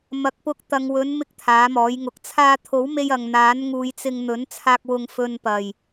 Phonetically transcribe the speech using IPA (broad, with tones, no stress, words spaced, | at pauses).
mɐ˨˥k̚pʊ˧k̚ t̪ɐ˨ŋwɵ˨˥n mɪ˥k̚t̪ʰaː˨˥mɔː˨˥jŋʊ˨˥k̚ t͡sʰaː˧t̪ʰo˨˥wme˧j ɐ˨ŋn̪aː˨˥nŋuː˨˧jt͡sɪ˧ŋ n̪ɵ˨˥nt͡sʰaː˧k̚ wʊ˧ŋfɵ˧npɐ˨˩j